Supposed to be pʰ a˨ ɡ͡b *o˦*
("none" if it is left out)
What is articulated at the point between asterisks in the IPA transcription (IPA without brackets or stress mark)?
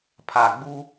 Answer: u˦